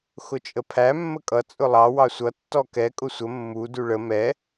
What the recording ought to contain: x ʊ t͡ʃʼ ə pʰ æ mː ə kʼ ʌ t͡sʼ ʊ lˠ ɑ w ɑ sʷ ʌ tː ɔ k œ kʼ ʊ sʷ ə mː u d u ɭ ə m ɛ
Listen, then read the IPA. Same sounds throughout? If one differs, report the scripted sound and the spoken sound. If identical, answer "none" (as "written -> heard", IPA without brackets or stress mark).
œ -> ɛ